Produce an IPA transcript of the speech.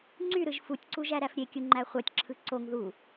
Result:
ŋ͡ǀyɾɯʒ futʲǀuʒæɾæf ɾʲekʲuŋ͡ǃæ χʷætʲǁʰɯ ǀoŋ ðu

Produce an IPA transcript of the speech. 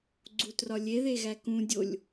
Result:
ɡ͡ǀutrɒlʲeðe ɣækũ dʲolʲ

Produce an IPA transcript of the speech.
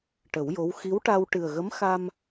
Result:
ʈə˨˩˦wjo˧˥w xi˧˥wʈa˧w ʈɨ˨˩ə̯ɣə˧˥m xa˧m

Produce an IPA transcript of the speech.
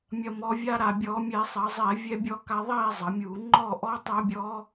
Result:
mʲɐ˨˩mɔ˩˧vʲa˧ ɾa˨˩bʲɔ˧˩˧mʲɛ˧˩˧ sˤɐ˩˧zˤɛ˧˩˧ vʲɛ˧bʲɔ˧ka˧ ðˤɛ˥˨zˤɐ˩˧mʲu˧˩˧ ŋ͡ǃɔ˥˨ʔɔ˦˥tˤɐ˦˥bʲɔ˦˥

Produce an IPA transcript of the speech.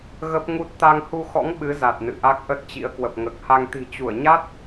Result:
ɣə˦˥p̚ŋu˦˥t̚ t̪a˧ŋhu˧xɔ̰˧˥ŋ ɓɨ˨˦za˨˩t̚ nɨ̰˧˨ʔa˦˥k̚ʔə˦˥t̚t͡ɕḭ˧˥ə̯ kwə˨˩p̚ŋəː˨˩k̚ha˧ŋ t̪i̤˨˩t͡ɕu˧˩ə̯ɲa˦˥t̚

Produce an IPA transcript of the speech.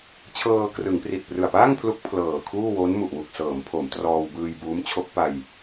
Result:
t͡ɕʰɤː˧krɯ˩˦ŋpri˨˩t̚ prɯ˨˩a̯paː˥˩ŋpʰlu˦˥k̚ pʰlɤː˨˩kʰuː˥˩ wo˦˥n mu˨˩ʔwu˨˩k̚sɤː˩˦mpʰo˩˦m trɔː˧wbɯː˧j buː˦˥mt͡ɕʰo˦˥k̚pa˧j

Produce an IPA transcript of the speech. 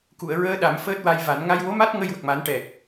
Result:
ku˨˩˨ə̯ɹəː˧ ɗa˨˩˦mfəː˦˥t̚wa˧jva˨˩˦n ŋa˧jwo˧˥ma˦˥t̚ ŋə˧jwə˨˩k̚ma˨˩˦n ʈɛ˨˩k̚

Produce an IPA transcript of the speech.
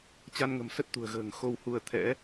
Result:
t͡ɕa˧nŋə̤˨˩m sə˦˥t̚t̪ṳ˨˩ə̯ɣə̤ː˨˩ŋ xo˧whu˧ə̯ t̪ʰɛ̰˧˥

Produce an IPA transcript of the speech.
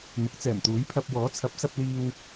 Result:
n̪ʊ˨˥k̚t͡sɛː˨˩mt̪uː˨˥jpʰɐ˧p̚ wɔː˨˥t͡sʰɐ˨˥p̚sɐ˧p̚liː˧w

